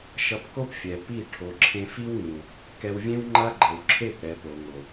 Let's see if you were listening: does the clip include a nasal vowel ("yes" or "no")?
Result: yes